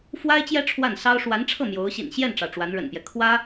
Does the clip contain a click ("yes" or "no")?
no